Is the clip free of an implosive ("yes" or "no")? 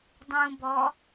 yes